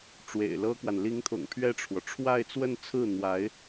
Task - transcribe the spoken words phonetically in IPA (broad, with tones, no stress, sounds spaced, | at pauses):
ʈ͡ʂ w ḛ˨˩ ɪ̯ l ɤ˥ k w a˨ n l i˧˥ ŋ t̪ʰ ʊ̰˨˩ ŋ pʰ ɥ ɛ˥˩ ʈ͡ʂʰ w ɔ˩ ʈ͡ʂʰ w a˥˧ ɪ̯ t͡s w ə˥˧ n t͡sʰ ɹ̩˥˩ n̪ w a˧˥ ɪ̯